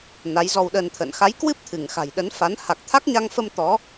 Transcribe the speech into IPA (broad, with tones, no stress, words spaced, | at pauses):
na˨˦jzɔ˧wɗəː˧nt̪ʰə̰ː˧˨n xa˨˦jkwɨ˦˥p̚ t̪ʰɨ˧˩ŋ xa̤˨˩jɗə˨˦n fa˨˦n ha˨˩k̚t̪ʰa˦˥k̚ɲa˧ŋfə˧m t̪ɔ˨˦